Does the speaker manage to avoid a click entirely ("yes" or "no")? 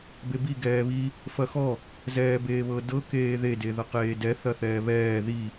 yes